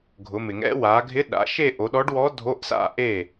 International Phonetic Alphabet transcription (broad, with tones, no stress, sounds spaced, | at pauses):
ɡʱ ʊ˩˧ m ɪ˩ ŋ ɛ̰˧˥ w a˩˧ ɡʱ ɪ˧˥ ɗ a̰˩˧ ʃ e˥˧ ʔ o˩˧ ɗ ɔ˧˥ ɖ w ɔ˧˥ dʱ o˧˥˧ ʔ s a̰˥˩ ʔ e˥˩